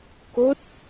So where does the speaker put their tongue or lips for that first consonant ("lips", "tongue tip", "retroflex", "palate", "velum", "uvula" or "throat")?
velum